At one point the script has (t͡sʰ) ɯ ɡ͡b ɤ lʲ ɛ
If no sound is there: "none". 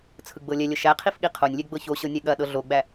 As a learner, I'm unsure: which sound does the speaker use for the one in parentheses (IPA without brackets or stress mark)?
t͡sʰ